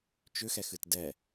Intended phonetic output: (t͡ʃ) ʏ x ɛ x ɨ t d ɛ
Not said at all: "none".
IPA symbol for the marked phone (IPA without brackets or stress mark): t͡ʃ